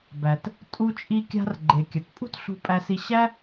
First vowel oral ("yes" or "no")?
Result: yes